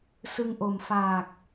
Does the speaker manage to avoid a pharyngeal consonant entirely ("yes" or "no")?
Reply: yes